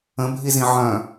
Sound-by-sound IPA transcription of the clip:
ə̃bʱizĩ ʕœ̃

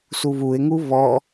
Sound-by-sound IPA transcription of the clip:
suβuɪ̯ŋu βɔ

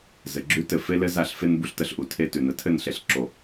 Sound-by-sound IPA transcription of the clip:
zɘ˨ɡ͡ǁʉ˦tɘ˦˨ fe˦lɘ˦za˦˨ɬfe˦n bu˦ɬtə˦ɬʔu˨ tʰe˦tʉ˨nə˨ tʰɘ˦˨nɬe˨ɬǁo˨

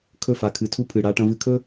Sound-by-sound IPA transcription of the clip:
kʰɵ˦˨fa˨kʰɨ˨tʰu˦ pʰɨ˨ ɽa˦ʈɐ̃˦ vɨ˨kʰɵ˦

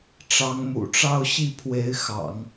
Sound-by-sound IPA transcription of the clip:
ʈ͡ʂɑ˧˥ŋmṵ˨˩ʈ͡ʂɑ˥˧ʊ̯ ɕi˥˩pʰwe˧˥ɪ̯ xɑ̰˨˩˦ŋ

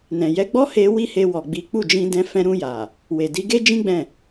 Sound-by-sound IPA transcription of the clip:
nɛ̃˨ jɛ˨˦ɡ͡bɔ˦he˧ wi˦he˧ wɔ˨ɡ͡bi˨˦ k͡pu˦˨d͡ʒĩ˧dɛ̃˧ fɛ̃˧ɾũ˧ja˨ | we˨di˨˦ ɡe˦d͡ʒĩ˦ ɡ͡bɛ̃˦˨

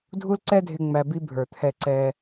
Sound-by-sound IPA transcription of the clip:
dʱu˦lǀɛ˦dʱɪ˧ ŋ͡mæ˧bi˦ bʱə˞˨t̪ʰɛ˧ǀɛ˧

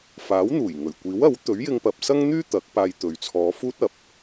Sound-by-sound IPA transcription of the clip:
faː˨˥wn̪uː˨˩j ŋɵ˨˩ɥ kʷiː˨˥wɐ˨˥w t̪ɵ˨˥ɥjɪ˧ŋpɐ˨p̚sɐ˥ŋ n̪yː˥ t̪ɐ˨˥k̚paː˧jt̪ɵ˨ɥ t͡sʰɔː˨˧fuː˥t̚ɐ˨˥p̚

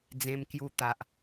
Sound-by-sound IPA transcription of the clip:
d͡zẽ˧mkju˧t̪a˨ʔ

